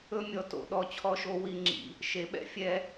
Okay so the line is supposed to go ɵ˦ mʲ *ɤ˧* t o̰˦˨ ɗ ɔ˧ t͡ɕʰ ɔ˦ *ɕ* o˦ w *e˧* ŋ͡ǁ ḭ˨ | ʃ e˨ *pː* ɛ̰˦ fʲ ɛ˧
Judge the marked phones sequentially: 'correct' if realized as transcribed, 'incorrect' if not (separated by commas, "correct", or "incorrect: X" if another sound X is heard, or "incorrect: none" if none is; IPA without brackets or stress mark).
incorrect: ɔ˧, incorrect: ʃ, incorrect: i˧, incorrect: ɓ